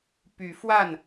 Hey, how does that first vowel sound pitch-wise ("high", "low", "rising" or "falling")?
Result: rising